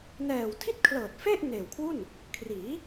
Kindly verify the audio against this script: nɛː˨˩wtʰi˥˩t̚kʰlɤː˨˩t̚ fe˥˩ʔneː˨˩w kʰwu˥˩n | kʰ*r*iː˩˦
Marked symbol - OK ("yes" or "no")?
yes